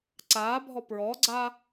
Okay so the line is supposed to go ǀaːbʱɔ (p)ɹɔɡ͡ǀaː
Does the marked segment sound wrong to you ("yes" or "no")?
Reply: no